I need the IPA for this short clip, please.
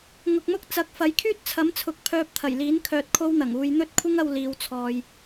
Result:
ŋʊ˨k̚mʊ˥k̚ t͡sɐ˨˥k̚fɐ˨˥j kʰyː˥t̚t͡sʰɐ˨˥mt͡sʰʊ˨˥k̚ pʰœː˧p̚t̪ʰɐ˨˩jliː˨˥n kʰœː˧t̚kʰo˥wn̪ɐ˨˩ŋuː˧j n̪ɵ˥t̚ kʷʰɪ˥ŋɐ˧w liː˨˧wt͡sʰɔː˨j

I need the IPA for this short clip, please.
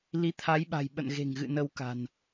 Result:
li˨˦t̪ʰa˨˦jɓa̤˨˩j ɓə̰˧˨nɣe̤˨˩ŋɣɨ̰˧˨ nə˧wka̤˨˩n

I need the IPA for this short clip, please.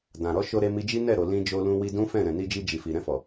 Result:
dã˨ɾɔ˨˦ʃo˧ɾe˧ mi˧d͡ʒi˦nɛ˦˨ ɾo˨ lĩ˧ d͡ʒo˧lũ˧ wi˧dũ˦fɛ̃˦˨ ɾɛ̃˨ni˧d͡ʒi˧ d͡ʒi˨fi˨ ɾɛ̃˧fɔ˨

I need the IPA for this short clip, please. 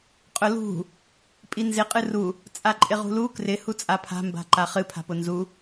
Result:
qʼʊlṳ | pʼinzɪ qʼɨru | t͡sʼaǃʼɪʁṳlu krɪ hut͡sʼapʰa̤ mba̤ǃaχɨ pʰa̤pʊnzu

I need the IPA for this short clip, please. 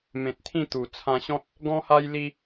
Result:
mẽ˨t̚t̪ʰĩ˥˧ t̪u˨˩ t͡sʰã˧ɕɔ̃˦t̚ | ɡɔ̃˦ha˦j li˦

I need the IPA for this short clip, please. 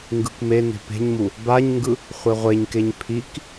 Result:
ŋɡɯkmene̤ pe̤ɲmu | baɲŋɡɯ | χʷeʁʷeɲkeɲ pʰik

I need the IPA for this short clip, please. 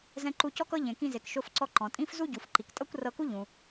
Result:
zɛ̃˧ǃu˧cɔ˥kɤ˥ ʎẽ˩kĩ˧ze˩k ʃo˧fǀɔ˧ ǃɔ̃˩tʼĩ˥f zu˥ɟu˩fǃi˩k tʼɤ˥kʷrɤ˧ku˥ ʎũ˩

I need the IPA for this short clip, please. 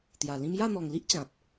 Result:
t̪ja˨˩lĩ˦m ja˥˧n̪ɔ˨˩ŋli˦ʔ t͡ɕã˨p̚

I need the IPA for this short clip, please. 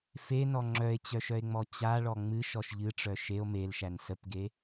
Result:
fenɔ ŋ͡ǁœe̯t͡ɕœʃœe̯ŋ͡mɔ t͡ɕaɭɔ ŋ͡mɨʃɔʃ ʎɨʈ͡ʂœ ʃeo̯ melʃæn səpɡe

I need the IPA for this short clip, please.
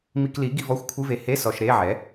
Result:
mi˧kli˩˥ ɡi˧vɔ˧˥˧xʷkʷʰɨ˧˥˧ve˧ he˧˥˧ sɔ˧ʃ ɾe˧˥˧ʕɛ˩˥

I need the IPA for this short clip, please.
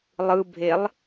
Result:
lˠɯbʱelˠ

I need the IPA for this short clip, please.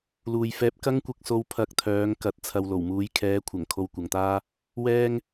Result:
luː˨jfɛː˧p̚ kɐ˥ŋkʷɪ˧k̚so˧w pʰɐ˧k̚t̪ʰœː˨˧ŋkɐ˨˥t̚ t͡sʰɐ˨wlo˨˩wmuː˨˧j kʰɛː˨˧kʷʰɐ˨˩ŋ kʰo˧wkʷɐ˨ŋt̪aː˥ | wɛː˥ŋ

